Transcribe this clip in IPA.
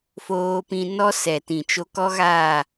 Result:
f oː˧ p ĩ˧ n ɔ˦ s ɛ˨ t ĩ˨ t͡ʃ o˧ k ɔ˦ ɣ aː˦˨

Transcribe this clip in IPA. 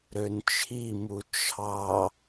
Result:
ɾ ø n t͡ʃʰ i m u t͡ʃʰ ɑ

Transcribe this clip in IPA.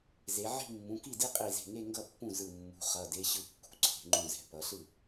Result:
z e˩˧ ʕ i̤˥˧ mː ũ˩˧˩ k i˥˩ d i˥˧ qʼ i˧˩ z e̤˧˩ ŋ e˥˧ ŋ ɡ ʌ˥˩ pː ũ˥˩ z ɯ˧˩ mː ṳ˩˧˩ χ ʌ˩˧˩ d e˦˥ ɕ ɯ˥˩ kː ṳ˩˧˩ ǀʰ e̤˩˧ ŋ͡ǃ ũ˧˩ z ɛ̤˩˧ p ʌ˩˧ ɬ ɯ˥˩

